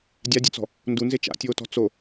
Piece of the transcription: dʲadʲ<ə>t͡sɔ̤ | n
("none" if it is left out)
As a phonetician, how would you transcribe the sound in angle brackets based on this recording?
ʊ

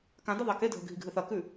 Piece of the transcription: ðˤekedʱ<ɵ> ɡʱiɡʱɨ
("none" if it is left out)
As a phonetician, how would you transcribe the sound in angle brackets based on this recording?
ɵ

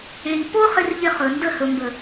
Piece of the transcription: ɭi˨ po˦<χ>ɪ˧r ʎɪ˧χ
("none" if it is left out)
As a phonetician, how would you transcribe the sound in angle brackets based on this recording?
χ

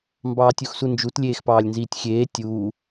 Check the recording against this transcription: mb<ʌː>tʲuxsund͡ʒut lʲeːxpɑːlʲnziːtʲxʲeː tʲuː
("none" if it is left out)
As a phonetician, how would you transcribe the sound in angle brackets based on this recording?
ɑː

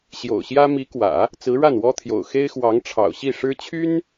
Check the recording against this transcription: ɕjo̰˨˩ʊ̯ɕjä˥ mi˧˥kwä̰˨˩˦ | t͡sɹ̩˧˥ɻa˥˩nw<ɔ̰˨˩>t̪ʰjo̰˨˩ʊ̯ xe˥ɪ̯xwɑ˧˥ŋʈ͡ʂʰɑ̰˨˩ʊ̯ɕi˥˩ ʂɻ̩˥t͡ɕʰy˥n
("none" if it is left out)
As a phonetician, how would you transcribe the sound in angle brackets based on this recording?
ɔ˥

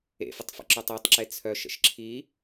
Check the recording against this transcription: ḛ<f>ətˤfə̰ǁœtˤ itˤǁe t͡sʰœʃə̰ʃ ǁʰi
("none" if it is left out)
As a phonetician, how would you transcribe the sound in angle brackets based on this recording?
f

